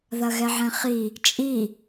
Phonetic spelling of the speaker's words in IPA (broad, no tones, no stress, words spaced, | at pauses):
ðɐɣɛʕɛ̃χi | t͡ʃʼi